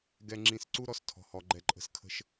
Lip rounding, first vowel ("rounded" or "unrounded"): unrounded